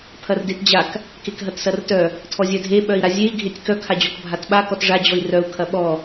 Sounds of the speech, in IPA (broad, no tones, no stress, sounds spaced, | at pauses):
pʰ ɐ r d e t d͡ʑ a k | k e k ɦ ɐ t s ɐ r t œ | tʰ ɔ zʲ œ dʱ e ɓ œ i̯ ɾ a zʲ e i̯ ɡʱ e tʲ k œ kʰ a d͡ʑ ɔ k bʱ a t ɓ a k ɔ t ʐ a d͡ʑ ɔ i̯ r œ u̯ kʰ ɐ ɓ ɔ